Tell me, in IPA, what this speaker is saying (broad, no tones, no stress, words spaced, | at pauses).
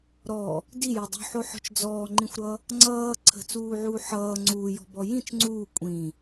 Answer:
ɾɔ | dijo dˤṳħoħɔ̤t͡ʃ d͡zɔːŋ͡ǃĩxʷɾʌ | ŋ͡ǀʌː ǀʰə̤t͡suːʕuː ħʌː ŋ͡ǀuːjɔ̤bɔ jĩt͡ʃ ŋ͡ǀuː kʷʼĩ